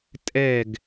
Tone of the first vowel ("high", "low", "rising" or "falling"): falling